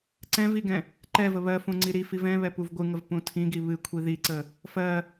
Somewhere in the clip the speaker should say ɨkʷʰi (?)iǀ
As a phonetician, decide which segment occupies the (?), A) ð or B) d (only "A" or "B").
A